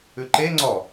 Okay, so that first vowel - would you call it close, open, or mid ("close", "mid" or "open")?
close